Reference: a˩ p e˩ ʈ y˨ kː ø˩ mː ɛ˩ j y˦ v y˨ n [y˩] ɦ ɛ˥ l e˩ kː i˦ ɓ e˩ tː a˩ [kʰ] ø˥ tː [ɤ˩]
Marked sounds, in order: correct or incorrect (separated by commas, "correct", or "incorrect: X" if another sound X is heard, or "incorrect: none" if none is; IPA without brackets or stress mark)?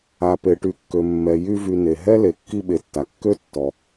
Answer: incorrect: e˩, incorrect: kː, incorrect: ɔ˩